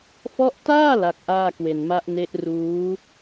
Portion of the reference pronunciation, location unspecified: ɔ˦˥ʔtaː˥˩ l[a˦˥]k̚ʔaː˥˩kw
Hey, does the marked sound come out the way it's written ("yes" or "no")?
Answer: yes